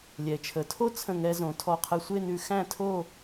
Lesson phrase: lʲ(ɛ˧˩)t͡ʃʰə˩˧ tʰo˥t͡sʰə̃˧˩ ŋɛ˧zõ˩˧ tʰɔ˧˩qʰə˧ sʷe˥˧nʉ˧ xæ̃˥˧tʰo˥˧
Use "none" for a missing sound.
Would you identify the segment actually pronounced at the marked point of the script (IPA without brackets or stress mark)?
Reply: ɛ˩˧